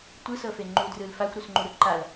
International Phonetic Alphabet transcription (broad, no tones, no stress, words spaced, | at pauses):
tʷɯsɤfe ŋ͡ǃudrɯl faxʷɾusŋ͡ǃuɾɯ ǃal